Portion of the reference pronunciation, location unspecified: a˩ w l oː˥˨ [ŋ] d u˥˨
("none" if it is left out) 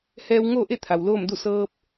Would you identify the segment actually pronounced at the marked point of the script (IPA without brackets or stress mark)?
m